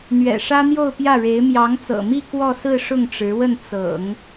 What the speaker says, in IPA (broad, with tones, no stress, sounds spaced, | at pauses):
n̪ ɥ ɛ̰˨˩ ʂ ä˥ n̪ j o˥˧ ʊ̯ p j ä˥˩ ɻ e˧˥ ɪ̯ m j ɑ˧˥ ŋ t͡s ɤ̰˨˩ m i˥˧ k w ɔ˥˧ s ɹ̩˥˧ ʂ ʊ˥˩ ŋ ʈ͡ʂ ɻ̩˧˥ w ə˥˩ n t͡s ɤ̰˨˩˦ ŋ